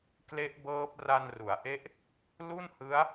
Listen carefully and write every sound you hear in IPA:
k l e˦˥ ʔ b ɤː˦˥ p̚ r a˧ n r u˩˦ a̯ ʔ e˦˥ ʔ | l u˥˩ n h ɯ˦˥ a̯

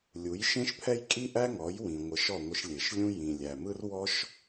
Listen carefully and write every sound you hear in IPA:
lʲ u˩˥ j ʃ ẽ˥ ʃ pʰ ɛ˥ j kʼ i˥ ʔ æ˥ ŋ ɔ˩˥ j w ĩ˩ ŋʷ ə˩˥ ʃ ɔ˥˩ ŋʷ ɪ˧ ʃ lʲ e˩ ʃ lʲ ũ˥ j ĩ˩ lʲ æ˩ m ɯ˥ r w ɔ˥ ʃ

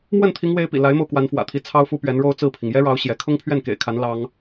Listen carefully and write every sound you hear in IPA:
m w ə˥˩ n t̪ʰ i˧˥ ŋ w e˧˥ ɪ̯ p ḭ˨˩ l a˧˥ ɪ̯ m o˧ ʊ̯ k w a˧˥ n f w ä̰˨˩ t̪ʰ i˧˥ t͡sʰ ɑ˥ ʊ̯ f u˥ p ɥ ɛ˧˥ n ɻ o˥ ʊ̯ t͡s ɹ̩˥˩ pʰ i˩ ŋ j ɛ˥ ɻ ɑ˧˥ ʊ̯ ɕ j ɛ˧˥ kʰ ʊ˥ ŋ pʰ ɥ ɛ˥˩ n k ḛ˨˩ ɪ̯ kʰ a˧˥ n l ɑ˥ ŋ

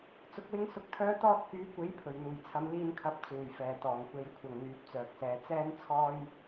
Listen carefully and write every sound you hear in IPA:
t͡s ʊ˧ k̚ w ɪ˥ ŋ s ʊ˧ k̚ t̪ʰ œː˥ t̪ ɔː˥ t̚ k yː˨˥ kʷ e˨˥ j pʰ ɵ˨˩ ɥ n̪ uː˨˩ j t͡sʰ ɐ˨˧ m l iː˧ n kʰ ɐ˨˥ p̚ t͡s uː˨˩ j f ɛː˨˩ t̪ ɔː˨˩ ŋ kʷ e˨˥ j kʷʰ ɐ˨ ŋ n̪ yː˨˥ p̚ t͡s œː˨ k̚ s ɛː˨˧ t͡s ɛː˥ n t͡sʰ ɔː˥ j

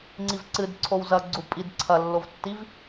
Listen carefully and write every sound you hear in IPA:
ŋ͡ǀ i v ǀ ɨ d ǀʰ o w z ɐ ɡ͡ǀ u pʼ i d ǀʰ ɐ lː o v tː i v

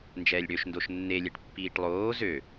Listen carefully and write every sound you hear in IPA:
n d͡ʒ ɛː lʲ ɽ ø ʃ n d o ʃ nː e lʲ ɛ ʈ pː iː ʈ lˠ oː z ø

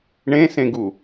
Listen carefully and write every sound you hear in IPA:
ɳ ẽ s ẽ ɡ u

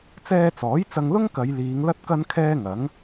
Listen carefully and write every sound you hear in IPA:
t͡s ɛː˧ t͡s ɔː˨˥ j t͡s ɐ˧ ŋ l ʊ˥ ŋ k ɐ˨˧ j l iː˨˧ ŋ l ɐ˥ t̚ k ɐ˥ n kʰ ɛː˥ ŋ ɐ˨˥ ŋ

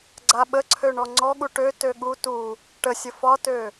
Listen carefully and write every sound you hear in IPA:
ɡ͡ǀ a ɓ ə ǀʰ ø ɳ ɔ ŋ͡ǀ ɔ ɠ u ʈ ø t ø ɠ u t u | ʈ ə sʲ ə f ɒ t ø

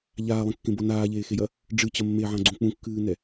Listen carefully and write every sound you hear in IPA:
ʎ aː lˠ ẽ kː ẽ b o n aː ʎ eː x e j ɐ | ɖ͡ʐ ɨ t͡ɕ ɐ mː e ʕ ã ɡ͡ǀ ũ k͡p ũ kː ɨː n ɛ

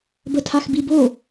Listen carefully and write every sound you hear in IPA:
b ə tʰ a x b i b o

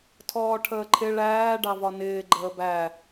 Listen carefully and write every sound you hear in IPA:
tʰ ɔː ʈʰ əː ǃʰ ɪ ɭ æː ɖ ɑ v ɒ n ɪː ɡ͡ǃ əː b æ

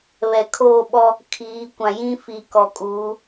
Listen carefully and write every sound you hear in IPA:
β ɛ˨ kʰ oː˦˨ ɓ ɔ˦ | kʰ iː˨˦ kʷ ã˨ j ĩ˦ f i˨ k ɔ˨ kʼ uː˨˦

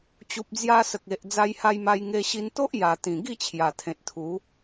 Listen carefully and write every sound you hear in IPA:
t͡ɕ u˨ p̚ d͡z j a˧ s ə˨ k̚ e˨ ʔ d͡z a˧ j h a˧ j m a˧ j ŋ e˧ ɕ i˧ n t̪ o˦ ʔ j a˨˩ t̪ ĩ˨˩ ɡ i˥˧ t͡ɕʰ j a˨˩ t̪ʰ ẽ˨ t̚ t̪ʰ u˨˦

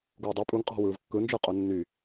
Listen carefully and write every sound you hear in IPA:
ɡ uː dˤ u pʼ u ŋ qʼ ɑ̤ w ɯː v kː ɯ n d͡ʒ ɯ qʼ o nː y

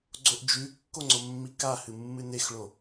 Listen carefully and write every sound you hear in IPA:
ɡ͡ǀ o ʔ d͡ʒ ʉ kː o ŋ͡ǀ o mː i k a h ɨ mː ɨ n e x ɭ o

